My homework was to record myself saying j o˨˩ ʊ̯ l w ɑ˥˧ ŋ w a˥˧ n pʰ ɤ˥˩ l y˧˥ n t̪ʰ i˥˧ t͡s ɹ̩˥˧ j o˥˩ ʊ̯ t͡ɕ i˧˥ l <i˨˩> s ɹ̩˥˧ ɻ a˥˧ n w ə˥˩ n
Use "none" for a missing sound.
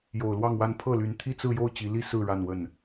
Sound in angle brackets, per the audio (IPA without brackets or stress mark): i˥